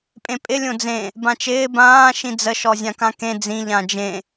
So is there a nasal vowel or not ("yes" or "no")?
yes